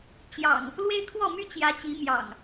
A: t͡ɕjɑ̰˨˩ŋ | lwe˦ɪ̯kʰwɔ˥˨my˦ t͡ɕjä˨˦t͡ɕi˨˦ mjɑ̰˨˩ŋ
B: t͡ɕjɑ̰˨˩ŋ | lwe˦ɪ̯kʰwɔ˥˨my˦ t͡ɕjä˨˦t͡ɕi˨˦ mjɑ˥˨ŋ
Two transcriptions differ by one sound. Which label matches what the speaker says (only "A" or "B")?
A